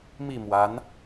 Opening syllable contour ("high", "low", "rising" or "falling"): falling